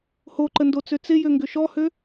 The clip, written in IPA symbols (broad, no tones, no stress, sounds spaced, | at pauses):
h o ǃ ə n d o t͡s ø t͡s ɪ j ø ŋ ɡ ʏ ʃ ɔ h ø